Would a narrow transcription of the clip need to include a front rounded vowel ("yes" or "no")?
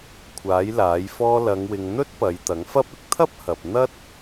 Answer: no